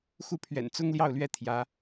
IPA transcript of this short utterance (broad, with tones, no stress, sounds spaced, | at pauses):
x u˥˩ pʰ ɥ ɛ̰˨˩ n t͡s ʊ˥ ŋ l j ɑ˥˩ ʊ̯ l ɥ ɛ˥ t̪ʰ j ä˧˥